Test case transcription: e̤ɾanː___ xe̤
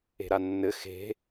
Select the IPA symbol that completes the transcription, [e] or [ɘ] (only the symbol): ɘ